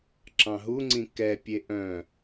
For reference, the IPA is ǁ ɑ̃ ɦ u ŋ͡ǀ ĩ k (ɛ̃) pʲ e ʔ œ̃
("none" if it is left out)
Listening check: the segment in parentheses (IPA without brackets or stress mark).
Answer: ɛ